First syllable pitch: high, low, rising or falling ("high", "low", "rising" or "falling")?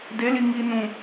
rising